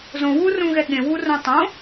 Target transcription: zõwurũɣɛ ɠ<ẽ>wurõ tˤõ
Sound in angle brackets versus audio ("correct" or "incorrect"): correct